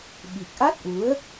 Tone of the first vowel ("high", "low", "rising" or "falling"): low